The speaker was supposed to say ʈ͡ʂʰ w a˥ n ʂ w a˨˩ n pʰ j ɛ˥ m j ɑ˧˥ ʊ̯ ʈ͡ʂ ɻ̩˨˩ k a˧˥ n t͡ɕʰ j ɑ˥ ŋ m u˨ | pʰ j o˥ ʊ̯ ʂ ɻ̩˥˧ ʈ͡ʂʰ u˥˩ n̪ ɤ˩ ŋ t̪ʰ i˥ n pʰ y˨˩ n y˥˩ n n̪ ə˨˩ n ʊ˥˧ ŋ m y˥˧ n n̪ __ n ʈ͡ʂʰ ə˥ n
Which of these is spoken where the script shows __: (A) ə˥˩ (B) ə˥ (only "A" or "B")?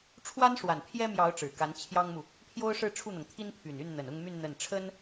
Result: A